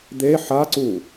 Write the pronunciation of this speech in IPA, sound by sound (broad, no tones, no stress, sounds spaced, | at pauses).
d̪ e ħ a ǀ u